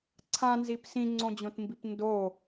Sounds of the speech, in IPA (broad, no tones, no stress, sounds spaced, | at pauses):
ǀʰ ã n z i p s ĩ ŋ͡ǀ õ d͡ʑ õ t m b i p n d o